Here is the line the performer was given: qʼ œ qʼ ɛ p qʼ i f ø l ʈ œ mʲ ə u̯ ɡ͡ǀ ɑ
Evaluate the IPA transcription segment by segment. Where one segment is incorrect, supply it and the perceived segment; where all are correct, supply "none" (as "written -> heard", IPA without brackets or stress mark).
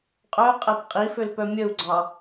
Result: ʈ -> p